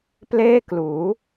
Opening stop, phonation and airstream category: plain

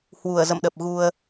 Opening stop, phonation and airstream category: implosive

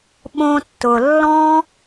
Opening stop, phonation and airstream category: implosive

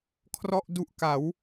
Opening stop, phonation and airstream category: aspirated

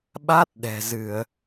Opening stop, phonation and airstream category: implosive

